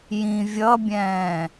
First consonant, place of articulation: palatal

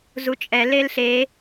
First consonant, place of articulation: alveolar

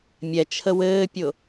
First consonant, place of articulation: labial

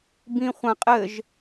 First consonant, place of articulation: labial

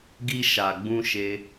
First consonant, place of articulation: velar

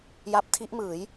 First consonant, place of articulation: palatal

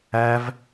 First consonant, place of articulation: labial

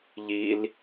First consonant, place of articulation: palatal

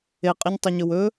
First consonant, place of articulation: uvular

